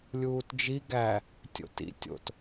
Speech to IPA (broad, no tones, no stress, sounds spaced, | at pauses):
lʲ uː t d͡ʒ i ɡ æ | tʲ o̰ t ḭ tʲ o̰ t